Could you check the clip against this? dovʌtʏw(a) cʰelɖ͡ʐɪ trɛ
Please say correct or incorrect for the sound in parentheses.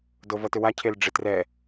correct